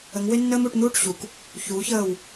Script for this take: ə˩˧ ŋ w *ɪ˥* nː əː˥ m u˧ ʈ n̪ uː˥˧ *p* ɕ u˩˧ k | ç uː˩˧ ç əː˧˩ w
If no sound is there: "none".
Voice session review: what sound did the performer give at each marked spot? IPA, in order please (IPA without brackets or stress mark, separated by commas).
ɪ˥, ʈ